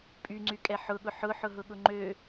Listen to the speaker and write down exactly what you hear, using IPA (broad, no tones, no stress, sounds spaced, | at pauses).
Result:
pʼ y ŋ͡ǀ y kʼ ɛ ħ ʊ ɠ ʊ ħ ʊ ħ ʊ ɦ ʊ ɠ ʊ ŋ͡ǃ ø